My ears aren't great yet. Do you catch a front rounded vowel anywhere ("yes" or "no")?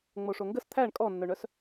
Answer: yes